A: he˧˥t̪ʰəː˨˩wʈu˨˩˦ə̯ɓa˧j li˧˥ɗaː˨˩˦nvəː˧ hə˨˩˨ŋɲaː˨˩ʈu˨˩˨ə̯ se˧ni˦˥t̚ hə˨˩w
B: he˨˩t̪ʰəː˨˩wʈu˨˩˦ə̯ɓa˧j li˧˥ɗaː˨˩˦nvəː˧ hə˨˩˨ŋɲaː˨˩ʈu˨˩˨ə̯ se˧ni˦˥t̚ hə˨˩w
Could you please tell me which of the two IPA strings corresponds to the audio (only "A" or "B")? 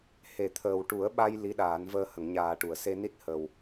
B